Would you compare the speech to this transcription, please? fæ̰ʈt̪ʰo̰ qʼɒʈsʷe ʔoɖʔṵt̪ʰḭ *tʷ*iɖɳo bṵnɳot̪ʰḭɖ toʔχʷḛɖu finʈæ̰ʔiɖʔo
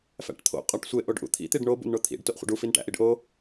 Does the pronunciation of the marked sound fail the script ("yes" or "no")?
yes